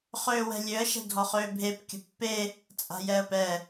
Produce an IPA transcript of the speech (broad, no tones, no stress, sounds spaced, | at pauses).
χ øː w ɛ̤ lʲ ø ə̯ ʃ ɛ̤ dʱ ɔ χ øː bʱ e p kʲ ə̤ pː e | t͡sʼ a̤ j ɛ ə̯ p ɛ